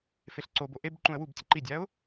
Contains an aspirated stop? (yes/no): no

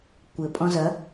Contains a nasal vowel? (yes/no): yes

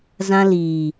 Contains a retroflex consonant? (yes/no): no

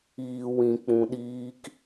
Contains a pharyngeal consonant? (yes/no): no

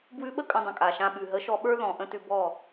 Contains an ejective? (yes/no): yes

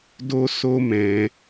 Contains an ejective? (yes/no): no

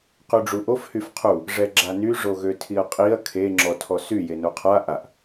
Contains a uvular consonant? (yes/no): yes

